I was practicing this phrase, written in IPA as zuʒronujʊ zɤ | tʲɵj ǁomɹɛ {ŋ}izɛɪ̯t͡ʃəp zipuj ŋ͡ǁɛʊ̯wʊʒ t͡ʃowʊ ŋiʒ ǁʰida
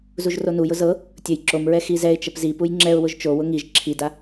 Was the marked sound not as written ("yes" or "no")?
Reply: yes